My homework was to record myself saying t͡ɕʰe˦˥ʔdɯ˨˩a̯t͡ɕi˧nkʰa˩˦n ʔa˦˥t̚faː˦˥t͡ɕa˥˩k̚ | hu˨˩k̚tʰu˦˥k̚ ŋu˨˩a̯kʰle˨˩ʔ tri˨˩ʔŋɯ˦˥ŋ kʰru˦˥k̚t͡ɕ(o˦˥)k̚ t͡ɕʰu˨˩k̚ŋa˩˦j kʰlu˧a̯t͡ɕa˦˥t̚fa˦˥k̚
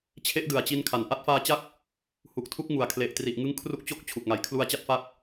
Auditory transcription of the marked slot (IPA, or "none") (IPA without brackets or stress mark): o˦˥